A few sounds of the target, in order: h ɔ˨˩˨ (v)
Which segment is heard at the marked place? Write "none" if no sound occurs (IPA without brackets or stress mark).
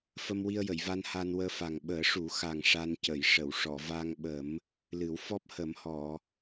none